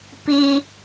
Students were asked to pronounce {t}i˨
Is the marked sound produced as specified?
no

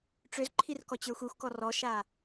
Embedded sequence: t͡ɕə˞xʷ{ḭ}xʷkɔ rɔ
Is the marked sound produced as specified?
no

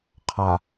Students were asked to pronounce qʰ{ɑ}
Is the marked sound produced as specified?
no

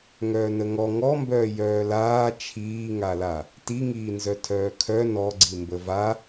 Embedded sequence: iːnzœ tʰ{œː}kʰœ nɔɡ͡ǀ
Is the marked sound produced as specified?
yes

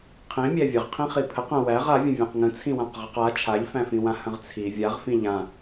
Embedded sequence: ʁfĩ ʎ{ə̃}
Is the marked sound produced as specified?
no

